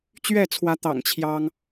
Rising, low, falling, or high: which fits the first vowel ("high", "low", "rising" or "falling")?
falling